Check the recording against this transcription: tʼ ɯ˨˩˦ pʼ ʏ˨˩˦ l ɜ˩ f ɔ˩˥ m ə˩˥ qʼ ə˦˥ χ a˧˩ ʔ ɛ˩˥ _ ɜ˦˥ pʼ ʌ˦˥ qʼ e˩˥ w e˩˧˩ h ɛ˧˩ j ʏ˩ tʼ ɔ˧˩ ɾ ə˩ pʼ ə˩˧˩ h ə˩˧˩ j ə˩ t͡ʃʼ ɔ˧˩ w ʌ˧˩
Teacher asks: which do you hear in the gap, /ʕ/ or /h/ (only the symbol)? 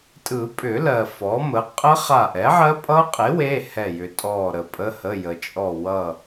ʕ